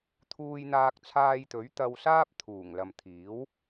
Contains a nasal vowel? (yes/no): no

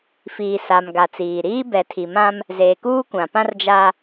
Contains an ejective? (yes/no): no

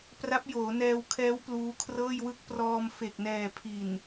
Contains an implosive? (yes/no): no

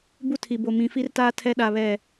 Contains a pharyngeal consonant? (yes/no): no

